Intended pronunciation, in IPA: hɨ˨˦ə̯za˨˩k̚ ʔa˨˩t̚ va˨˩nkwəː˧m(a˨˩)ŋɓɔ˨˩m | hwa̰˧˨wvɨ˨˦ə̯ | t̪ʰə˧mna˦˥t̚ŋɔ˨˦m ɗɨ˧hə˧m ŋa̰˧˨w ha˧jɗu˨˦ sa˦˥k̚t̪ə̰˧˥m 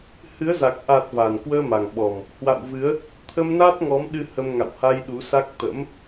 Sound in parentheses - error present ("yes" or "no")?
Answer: no